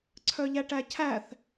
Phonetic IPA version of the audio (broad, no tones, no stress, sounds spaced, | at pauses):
ǀʰ œ ʎ æ ʈ æ cʰ æ θ